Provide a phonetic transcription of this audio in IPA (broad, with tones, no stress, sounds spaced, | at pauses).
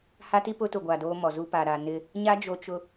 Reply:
h a˦ t i˦ p ʊ˦ t ʊ˨ ɡʷ a˨ d oː˦ m ɔ˨ z u˦ p a˨ ɾ a˨ n ɪ˦ | ɲ a˦ d͡ʒ o˨ t͡ʃ ʊ˨